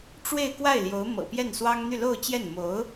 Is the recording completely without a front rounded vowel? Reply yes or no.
no